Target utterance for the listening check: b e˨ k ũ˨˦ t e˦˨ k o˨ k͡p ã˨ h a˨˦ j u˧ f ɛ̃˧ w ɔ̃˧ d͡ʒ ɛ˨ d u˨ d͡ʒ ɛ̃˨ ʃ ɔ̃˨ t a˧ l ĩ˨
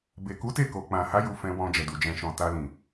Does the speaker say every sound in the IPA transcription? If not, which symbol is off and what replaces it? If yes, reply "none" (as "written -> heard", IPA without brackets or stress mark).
ũ˨˦ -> u˨˦